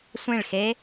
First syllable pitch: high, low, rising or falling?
falling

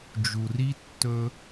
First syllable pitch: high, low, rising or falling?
low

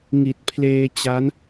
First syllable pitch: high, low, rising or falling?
low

